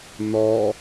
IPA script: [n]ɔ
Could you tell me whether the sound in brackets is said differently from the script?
no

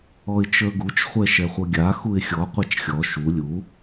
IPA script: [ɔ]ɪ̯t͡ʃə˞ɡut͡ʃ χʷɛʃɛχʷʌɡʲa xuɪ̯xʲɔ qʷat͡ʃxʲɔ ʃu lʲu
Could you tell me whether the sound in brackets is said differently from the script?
no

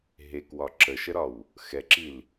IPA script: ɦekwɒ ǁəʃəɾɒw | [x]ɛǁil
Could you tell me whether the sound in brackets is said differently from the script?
no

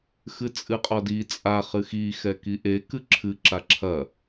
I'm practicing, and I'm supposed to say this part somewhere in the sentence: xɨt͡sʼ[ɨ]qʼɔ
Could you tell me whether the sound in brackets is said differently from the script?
no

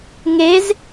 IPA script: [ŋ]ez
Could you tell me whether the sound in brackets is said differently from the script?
no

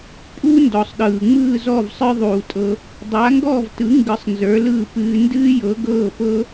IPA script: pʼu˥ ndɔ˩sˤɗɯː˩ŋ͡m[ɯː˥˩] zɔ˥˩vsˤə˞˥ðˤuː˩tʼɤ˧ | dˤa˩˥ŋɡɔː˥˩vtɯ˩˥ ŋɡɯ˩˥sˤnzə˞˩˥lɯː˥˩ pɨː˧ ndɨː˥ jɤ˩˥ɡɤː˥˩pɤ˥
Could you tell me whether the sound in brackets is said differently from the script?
no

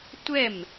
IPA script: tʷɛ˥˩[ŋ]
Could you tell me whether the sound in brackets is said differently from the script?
yes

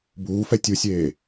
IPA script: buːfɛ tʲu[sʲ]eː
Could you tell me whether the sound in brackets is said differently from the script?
no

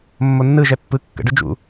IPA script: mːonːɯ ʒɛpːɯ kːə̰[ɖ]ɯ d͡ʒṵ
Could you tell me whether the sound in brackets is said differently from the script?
no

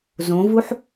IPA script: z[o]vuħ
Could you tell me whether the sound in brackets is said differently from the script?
yes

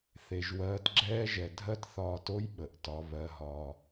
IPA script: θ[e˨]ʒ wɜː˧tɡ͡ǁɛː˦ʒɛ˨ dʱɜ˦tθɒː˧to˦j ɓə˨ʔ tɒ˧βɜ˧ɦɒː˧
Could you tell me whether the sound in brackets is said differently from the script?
no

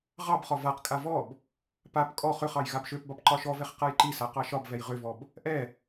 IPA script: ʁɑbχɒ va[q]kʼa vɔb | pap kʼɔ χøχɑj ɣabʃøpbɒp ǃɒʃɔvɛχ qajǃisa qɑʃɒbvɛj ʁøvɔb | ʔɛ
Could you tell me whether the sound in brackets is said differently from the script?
no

